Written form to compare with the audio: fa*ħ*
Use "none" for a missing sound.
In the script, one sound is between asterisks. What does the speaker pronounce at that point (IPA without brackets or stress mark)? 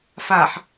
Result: ħ